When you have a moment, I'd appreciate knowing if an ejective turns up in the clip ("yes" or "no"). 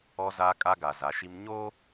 yes